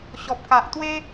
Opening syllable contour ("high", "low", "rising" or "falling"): low